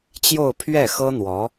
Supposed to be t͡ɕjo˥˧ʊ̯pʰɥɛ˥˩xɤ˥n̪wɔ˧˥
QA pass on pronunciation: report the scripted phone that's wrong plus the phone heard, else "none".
none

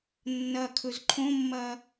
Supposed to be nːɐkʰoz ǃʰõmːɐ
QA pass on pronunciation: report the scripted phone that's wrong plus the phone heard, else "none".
o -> ɵ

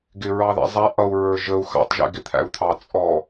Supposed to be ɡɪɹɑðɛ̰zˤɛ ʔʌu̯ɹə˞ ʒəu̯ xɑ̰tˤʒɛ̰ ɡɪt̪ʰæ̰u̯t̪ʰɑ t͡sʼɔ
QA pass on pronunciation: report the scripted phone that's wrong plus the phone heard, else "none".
none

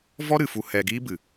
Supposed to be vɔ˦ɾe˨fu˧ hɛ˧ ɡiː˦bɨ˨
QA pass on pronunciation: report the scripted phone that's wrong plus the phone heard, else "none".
e˨ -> ɨ˨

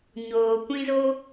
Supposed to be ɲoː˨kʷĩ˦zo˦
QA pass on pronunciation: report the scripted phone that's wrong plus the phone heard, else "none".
none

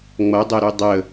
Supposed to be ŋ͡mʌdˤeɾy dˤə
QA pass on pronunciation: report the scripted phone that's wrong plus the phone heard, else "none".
none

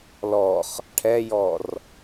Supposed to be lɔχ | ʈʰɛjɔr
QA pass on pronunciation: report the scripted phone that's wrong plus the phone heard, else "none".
none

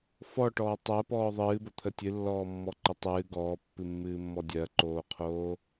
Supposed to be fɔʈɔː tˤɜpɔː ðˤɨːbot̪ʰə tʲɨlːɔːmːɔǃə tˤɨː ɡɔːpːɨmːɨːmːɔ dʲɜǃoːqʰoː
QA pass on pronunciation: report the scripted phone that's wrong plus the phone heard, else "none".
none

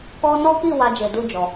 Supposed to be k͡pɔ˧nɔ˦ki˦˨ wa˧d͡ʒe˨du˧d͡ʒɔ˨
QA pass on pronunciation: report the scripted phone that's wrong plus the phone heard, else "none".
k͡p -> k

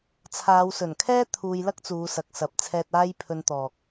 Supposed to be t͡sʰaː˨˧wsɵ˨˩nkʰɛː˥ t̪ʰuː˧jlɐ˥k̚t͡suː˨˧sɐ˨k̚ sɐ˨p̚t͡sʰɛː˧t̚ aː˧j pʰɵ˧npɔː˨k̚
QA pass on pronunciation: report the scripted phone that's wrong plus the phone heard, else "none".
p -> t̪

